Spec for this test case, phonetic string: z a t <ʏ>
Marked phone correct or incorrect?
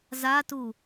incorrect